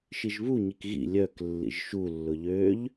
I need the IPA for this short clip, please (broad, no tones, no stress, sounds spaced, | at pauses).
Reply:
ʃ i ʒ β u ɲ i k ɣ ḭ lʲ œ k lː ḭ ʒ ʃ u lː ʊ ʎ ø ʎ